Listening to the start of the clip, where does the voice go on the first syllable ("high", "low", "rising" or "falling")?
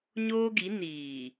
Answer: high